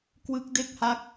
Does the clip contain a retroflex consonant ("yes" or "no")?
no